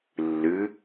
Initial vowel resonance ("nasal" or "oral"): oral